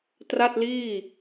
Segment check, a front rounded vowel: absent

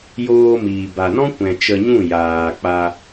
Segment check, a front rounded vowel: absent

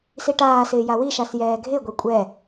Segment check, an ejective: present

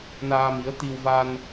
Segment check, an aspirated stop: absent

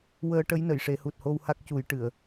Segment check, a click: absent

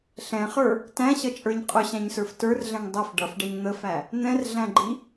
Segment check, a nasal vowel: present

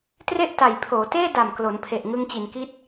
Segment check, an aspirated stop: present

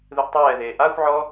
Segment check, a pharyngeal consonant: present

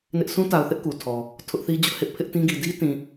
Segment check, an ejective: absent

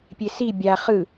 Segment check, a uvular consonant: present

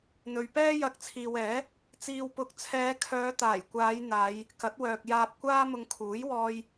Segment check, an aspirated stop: present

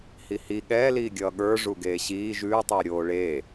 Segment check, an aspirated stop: absent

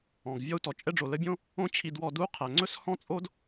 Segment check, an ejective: present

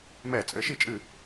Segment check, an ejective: present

